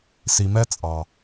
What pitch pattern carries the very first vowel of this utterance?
low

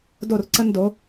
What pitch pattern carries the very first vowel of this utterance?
falling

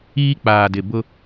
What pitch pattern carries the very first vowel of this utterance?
high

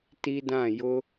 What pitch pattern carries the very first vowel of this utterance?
high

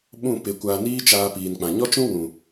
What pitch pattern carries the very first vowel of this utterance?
falling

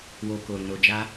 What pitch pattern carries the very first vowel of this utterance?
low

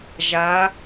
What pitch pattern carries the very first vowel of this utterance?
rising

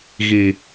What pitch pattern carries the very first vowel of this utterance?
low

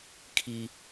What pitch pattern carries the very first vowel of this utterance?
high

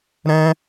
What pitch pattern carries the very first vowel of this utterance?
high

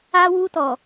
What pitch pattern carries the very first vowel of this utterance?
high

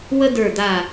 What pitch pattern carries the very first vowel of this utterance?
high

